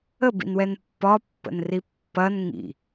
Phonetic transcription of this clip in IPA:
əbḭnwɛn pːɒpːə̰nri pːɐn ŋḭ

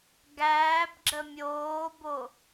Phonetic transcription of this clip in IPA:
ɡæːbɡ͡ǁə mʲoːbo

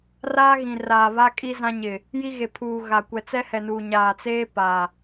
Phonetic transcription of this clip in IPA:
raː˦ɣĩ˨raː˨ βa˦kʼi˦zã˦ ɲɪ˨ | ji˦ɣe˨pʰuː˨ ɣa˨ kʷɛ˨t͡sɛ˦hɛ˨nuː˨ ɲaː˨t͡seː˦pa˨

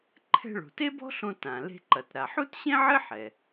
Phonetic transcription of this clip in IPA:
ǃʰɛ̤˧ɭo̤˩te˥ bɔ̤˥ɬõ˧ tã˩ le̤˧ǃɐ˩tɾa˩ ħu˥tɕẽ˥ʕɘ˥ ħɛ˩

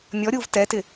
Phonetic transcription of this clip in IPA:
nʲɔɾʲuːv tɛtɪ

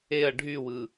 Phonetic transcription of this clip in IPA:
eɐ̯ ɖʱywɯ

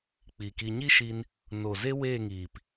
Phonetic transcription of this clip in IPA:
k͡pi˨ki˧ ɲi˦ʃi˧n | no˨ze˦weː˦˨ŋiː˨p

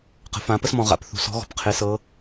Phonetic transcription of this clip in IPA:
qə̤˩˥fã˩˥pə˥smɔ̃˨ ʁa̰˨pθṳ˨sɔ̤˧˥ ɣɔ̤˨pqʰe˧˥sɤ˧˥

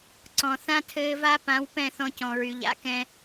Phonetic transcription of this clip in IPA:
ǀɔ̃˨ θã˦tʰɘː˧va˦pã˨˦w pɛ̃˦˨θɔ̃˧cɔ̃˨ɹy˨ʎ a̰˦kɛ̃˧

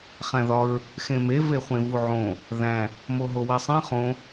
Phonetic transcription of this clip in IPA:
χæ̃ðɒɹ | xẽme veχʷẽvuʕõ | ðæ̃ | moɦowesˤẽ χõ

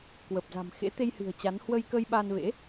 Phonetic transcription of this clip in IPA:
kwə˨˩p̚za̤˨˩mxḛ˧˥ t̪e˧jhɨ̤˨˩ə̯ t͡ɕa˨˦n hwə˧j kə˧jɓa˧nvḛ˧˥

